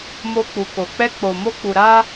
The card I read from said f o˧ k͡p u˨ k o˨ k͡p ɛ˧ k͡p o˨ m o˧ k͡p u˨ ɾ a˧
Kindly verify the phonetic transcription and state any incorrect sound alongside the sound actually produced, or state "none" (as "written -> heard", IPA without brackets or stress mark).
f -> m